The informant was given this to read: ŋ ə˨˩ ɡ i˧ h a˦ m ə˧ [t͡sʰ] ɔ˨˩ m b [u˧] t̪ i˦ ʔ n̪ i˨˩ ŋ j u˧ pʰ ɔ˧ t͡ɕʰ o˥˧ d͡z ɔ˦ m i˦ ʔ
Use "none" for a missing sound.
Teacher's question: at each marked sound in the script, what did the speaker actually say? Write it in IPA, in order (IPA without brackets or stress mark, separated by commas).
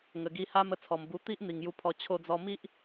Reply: t͡sʰ, u˧